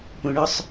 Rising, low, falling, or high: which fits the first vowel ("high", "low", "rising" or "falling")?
low